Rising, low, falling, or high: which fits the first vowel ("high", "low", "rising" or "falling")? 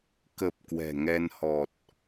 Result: low